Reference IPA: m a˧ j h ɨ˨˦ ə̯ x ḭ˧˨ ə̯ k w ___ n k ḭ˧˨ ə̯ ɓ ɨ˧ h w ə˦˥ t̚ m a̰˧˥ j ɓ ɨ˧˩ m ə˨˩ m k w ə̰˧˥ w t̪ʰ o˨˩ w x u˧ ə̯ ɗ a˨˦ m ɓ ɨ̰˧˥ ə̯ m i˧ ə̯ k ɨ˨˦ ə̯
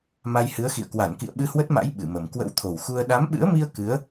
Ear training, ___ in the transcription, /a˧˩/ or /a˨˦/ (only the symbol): a˧˩